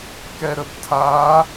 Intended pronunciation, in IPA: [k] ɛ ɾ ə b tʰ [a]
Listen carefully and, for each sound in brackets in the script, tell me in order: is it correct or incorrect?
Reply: correct, correct

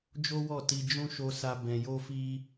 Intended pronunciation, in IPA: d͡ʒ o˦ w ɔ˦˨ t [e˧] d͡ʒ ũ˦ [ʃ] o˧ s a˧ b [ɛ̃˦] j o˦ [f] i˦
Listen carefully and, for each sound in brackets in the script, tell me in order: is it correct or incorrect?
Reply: incorrect: i˧, correct, incorrect: ɛ̃˧, correct

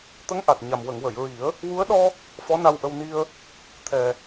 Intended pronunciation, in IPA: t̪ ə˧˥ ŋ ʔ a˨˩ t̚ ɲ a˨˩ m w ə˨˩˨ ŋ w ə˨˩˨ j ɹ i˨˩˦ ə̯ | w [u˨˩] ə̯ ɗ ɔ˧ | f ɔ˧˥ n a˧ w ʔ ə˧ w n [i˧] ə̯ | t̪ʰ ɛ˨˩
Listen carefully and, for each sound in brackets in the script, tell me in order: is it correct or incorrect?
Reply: incorrect: u˧˥, correct

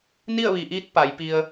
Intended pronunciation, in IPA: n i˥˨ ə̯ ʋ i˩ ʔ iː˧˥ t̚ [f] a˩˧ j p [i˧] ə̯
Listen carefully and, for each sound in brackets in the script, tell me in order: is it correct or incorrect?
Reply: incorrect: p, correct

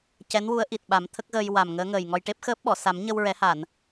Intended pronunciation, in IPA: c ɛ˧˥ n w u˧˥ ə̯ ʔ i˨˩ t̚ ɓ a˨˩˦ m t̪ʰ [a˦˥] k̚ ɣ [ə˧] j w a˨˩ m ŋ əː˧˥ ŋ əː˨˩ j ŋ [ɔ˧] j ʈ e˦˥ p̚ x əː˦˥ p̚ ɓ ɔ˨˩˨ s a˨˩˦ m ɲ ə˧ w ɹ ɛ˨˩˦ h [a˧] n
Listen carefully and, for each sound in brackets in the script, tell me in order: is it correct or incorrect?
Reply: incorrect: ə˦˥, incorrect: əː˧, correct, incorrect: a˨˩˨

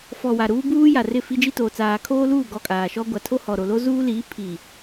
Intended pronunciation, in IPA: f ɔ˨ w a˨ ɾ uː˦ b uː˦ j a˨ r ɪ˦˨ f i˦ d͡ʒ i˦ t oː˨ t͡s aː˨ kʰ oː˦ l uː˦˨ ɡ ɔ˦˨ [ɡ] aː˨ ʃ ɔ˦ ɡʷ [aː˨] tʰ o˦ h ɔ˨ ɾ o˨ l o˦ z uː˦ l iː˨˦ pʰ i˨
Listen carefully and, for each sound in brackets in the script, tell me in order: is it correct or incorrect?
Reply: incorrect: kʼ, incorrect: a˨

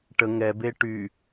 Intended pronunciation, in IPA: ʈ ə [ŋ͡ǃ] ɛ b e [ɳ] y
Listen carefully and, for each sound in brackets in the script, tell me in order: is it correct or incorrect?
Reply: incorrect: ŋ, incorrect: ʈ

